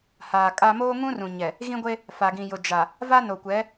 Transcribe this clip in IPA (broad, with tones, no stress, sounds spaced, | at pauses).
h aː˨ kʼ a˦ m oː˦ ŋ ũ˦ r ũ˨ ɲ ɛ˨ | ɣ ĩ˦ ɡʷ e˦ | f a˨ ɡ ĩ˨ j ʊ˨ d͡ʒ a˨ | v a˦ n o˨ kʷ ɛ˨˦